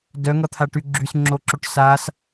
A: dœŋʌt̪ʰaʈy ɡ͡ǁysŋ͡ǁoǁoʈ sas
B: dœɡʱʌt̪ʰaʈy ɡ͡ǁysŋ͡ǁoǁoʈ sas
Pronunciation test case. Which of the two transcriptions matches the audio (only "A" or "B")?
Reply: A